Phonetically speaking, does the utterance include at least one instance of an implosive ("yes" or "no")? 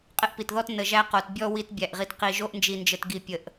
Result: no